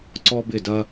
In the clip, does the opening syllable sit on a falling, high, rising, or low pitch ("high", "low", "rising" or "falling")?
high